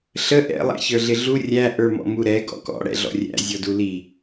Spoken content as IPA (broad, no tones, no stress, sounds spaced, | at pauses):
ɬ ə ʔ ɛ̰ lˠ æ̰ ç ə˞ ɮ ɪ ɮ u rʲ æ ʔ ə˞ m ɔ̰ m u ɾ ɛ ɡ ɔ̰ k ɔ̰ ɽ ɛ̰ ɮ ɔ̰ rʲ æ̰ zʲ ɔ d u l i